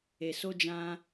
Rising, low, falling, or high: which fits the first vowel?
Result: low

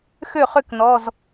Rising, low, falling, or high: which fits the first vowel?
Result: falling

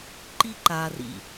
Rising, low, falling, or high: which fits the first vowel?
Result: high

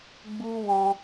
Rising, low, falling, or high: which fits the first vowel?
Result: high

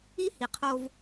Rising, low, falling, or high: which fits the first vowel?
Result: high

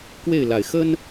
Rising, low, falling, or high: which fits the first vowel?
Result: falling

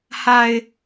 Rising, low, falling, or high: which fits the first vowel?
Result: high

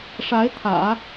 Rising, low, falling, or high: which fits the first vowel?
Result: rising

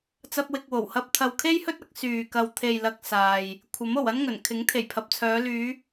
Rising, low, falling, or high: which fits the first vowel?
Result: high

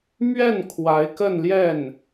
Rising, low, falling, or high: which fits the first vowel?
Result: falling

